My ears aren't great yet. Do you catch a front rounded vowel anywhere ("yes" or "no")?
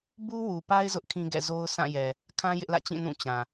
no